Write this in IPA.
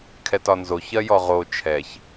kʰ ɛ t ɒ n z o ç ɜ j ɔ ʁ o t͡ʃʰ ɛ ç

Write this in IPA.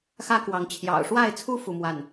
x ä˦ k w ɑ˨˦ ŋ t͡ɕʰ j ɑ̰˨˩ ʊ̯ ʂ w a˥˨ ɪ̯ t͡sʰ u˦ f u˦ m w a˥˨ n

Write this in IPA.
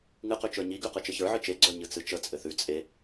ŋ ɨ q ʉ t͡ʃ ə˞ ɲ i ɡ ʉ q ɨ t͡ʃ ɘ ç ə˞ ʕ ɨ t͡ʃ e ɡ͡ǀ ə˞ ɲ ɨ t͡s ɨ t͡ʃ ə t͡sʼ ɘ θ ʉ t͡sʼ e

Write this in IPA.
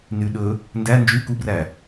n y ɗ ɵ | n d æ n d͡ʒ y k u b r æ

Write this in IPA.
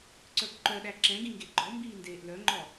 ǀ œ ɡ ǃ œ ɗ æ ǁ ɛ̃ ɡ ĩ ŋ ɡ e ɡ͡ǃ ɔ m b iː n d eː ʔ l œ ŋ͡ǃ ɔ

